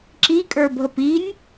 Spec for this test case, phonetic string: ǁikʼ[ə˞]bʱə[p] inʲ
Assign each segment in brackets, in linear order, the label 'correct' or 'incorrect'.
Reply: correct, correct

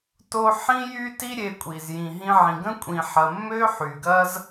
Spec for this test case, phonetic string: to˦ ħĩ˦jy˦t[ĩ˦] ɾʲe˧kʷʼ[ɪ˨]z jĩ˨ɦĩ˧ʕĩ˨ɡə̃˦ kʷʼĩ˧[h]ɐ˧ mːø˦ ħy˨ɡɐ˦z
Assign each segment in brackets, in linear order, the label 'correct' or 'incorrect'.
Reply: incorrect, incorrect, incorrect

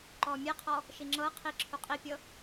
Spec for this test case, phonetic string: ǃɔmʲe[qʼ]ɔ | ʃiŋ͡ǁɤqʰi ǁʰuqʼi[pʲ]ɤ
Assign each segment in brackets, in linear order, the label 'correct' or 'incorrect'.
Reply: incorrect, correct

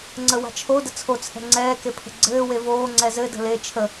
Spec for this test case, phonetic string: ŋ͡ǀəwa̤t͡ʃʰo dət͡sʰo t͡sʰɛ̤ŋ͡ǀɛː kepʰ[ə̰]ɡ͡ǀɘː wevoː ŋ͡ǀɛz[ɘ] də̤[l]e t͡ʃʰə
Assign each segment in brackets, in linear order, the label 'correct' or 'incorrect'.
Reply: incorrect, correct, correct

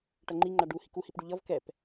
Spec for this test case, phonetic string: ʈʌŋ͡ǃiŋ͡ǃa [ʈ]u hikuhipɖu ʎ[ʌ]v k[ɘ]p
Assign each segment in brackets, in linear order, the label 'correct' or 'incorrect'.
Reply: incorrect, correct, incorrect

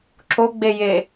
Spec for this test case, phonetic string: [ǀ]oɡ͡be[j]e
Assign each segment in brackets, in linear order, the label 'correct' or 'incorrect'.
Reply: incorrect, correct

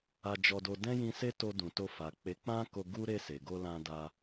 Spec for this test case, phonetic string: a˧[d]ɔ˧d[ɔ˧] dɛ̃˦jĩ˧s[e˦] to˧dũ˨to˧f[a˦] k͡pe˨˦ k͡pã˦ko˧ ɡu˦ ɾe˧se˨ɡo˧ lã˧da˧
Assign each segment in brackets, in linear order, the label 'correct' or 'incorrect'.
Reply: incorrect, incorrect, correct, incorrect

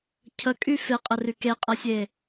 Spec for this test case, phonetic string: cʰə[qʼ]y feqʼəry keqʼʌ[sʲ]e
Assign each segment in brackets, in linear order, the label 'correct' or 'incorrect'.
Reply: incorrect, correct

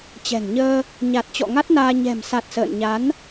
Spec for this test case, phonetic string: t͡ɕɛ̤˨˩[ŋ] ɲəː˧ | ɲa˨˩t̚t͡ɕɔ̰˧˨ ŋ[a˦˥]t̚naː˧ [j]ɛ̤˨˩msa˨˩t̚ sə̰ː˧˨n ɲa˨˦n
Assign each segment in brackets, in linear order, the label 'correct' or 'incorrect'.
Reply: correct, correct, incorrect

